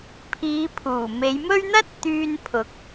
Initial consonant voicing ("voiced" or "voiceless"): voiceless